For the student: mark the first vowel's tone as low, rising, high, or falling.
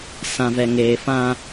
low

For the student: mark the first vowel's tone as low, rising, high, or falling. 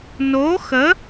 rising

